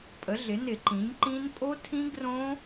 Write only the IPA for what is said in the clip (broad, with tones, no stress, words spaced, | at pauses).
pʼə˩˥ɮɪ˩˥nɪ˧˩˧ǃĩ˩˥ɲ ǃĩ˦˥n pʼo˦˥tʰĩ˦˥ ɡrõ˦˥